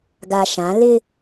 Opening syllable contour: low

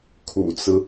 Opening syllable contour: low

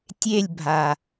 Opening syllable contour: falling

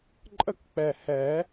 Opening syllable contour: falling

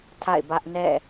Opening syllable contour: falling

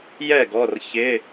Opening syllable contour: falling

